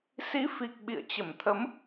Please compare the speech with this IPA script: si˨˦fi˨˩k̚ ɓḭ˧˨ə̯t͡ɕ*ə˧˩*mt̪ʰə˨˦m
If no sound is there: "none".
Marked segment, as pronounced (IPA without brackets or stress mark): ə˧˩